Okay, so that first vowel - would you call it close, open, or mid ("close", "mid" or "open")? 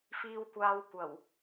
close